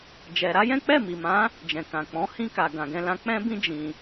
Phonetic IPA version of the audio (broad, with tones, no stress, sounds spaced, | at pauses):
d͡ʒ ɛ˧ ɾ a˦ j ɛ̃˦ k͡p ɛ˦˨ m i˨ m ã˨˦ | d͡ʒ ɛ̃˨ k ã˨ k͡p ɔ̃˨˦ h ĩ˦ k a˧ ɡ ã˧ ɡ ɛ̃˦ l ã˦ k͡p ɛ̃˦ b ĩ˦ d͡ʒ ĩ˧